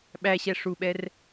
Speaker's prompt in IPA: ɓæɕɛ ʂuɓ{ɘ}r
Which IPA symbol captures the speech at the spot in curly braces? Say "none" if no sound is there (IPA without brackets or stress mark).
ɛ